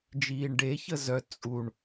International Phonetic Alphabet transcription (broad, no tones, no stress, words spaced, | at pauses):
d͡ʒiːɳɖe çəzœ t͡sʼuɳ